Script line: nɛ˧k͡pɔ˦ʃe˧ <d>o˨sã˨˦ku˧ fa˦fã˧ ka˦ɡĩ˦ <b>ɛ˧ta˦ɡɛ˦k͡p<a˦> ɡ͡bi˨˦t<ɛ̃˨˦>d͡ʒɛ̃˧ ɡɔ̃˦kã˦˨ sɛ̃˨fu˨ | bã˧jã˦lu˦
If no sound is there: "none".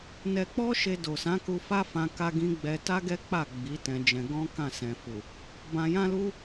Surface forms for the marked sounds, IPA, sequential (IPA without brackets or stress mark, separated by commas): d, ɡ͡b, a˦˨, ɛ̃˧